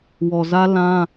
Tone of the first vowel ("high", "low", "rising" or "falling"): low